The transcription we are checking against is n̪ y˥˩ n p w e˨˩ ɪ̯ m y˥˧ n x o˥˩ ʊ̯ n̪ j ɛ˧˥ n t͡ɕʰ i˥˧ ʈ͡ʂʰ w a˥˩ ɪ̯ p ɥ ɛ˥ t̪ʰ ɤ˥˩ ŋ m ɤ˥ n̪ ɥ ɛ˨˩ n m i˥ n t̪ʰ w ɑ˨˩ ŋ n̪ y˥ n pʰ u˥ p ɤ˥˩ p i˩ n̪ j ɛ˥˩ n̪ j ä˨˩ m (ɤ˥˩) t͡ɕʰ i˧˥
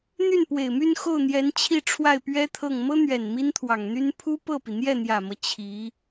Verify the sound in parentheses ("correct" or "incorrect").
incorrect